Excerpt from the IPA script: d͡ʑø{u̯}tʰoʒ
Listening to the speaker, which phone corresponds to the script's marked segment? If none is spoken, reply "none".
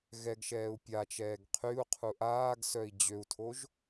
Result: u̯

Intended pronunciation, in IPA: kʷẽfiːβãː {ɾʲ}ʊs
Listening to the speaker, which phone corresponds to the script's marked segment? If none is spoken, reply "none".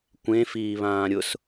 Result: ɾʲ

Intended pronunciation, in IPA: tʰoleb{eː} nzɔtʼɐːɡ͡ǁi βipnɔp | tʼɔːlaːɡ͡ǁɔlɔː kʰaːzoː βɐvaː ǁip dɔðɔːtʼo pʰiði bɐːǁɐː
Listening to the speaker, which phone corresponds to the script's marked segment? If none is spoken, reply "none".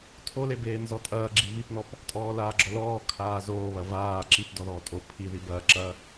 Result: eː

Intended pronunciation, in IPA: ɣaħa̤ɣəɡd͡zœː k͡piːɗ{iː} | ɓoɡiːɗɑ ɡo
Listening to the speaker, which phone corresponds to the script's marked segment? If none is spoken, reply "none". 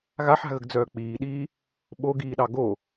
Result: iː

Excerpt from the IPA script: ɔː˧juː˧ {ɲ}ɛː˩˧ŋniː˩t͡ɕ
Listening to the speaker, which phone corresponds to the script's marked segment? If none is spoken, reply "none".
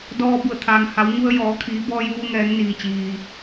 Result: ŋ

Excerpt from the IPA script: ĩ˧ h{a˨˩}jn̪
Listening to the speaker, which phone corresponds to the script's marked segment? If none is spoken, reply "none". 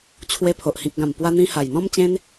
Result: a˨˩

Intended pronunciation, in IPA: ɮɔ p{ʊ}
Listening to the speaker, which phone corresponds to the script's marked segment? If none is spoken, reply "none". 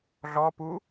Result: u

